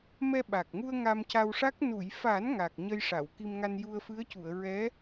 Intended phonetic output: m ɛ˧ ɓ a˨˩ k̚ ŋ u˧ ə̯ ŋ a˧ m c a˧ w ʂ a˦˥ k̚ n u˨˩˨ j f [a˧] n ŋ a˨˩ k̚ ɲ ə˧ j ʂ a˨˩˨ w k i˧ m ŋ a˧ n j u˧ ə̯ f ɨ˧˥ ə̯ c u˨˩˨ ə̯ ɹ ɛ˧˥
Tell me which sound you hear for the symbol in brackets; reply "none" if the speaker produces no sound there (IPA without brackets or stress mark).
a˨˩˦